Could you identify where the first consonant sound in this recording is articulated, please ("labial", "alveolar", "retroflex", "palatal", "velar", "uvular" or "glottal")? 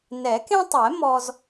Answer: alveolar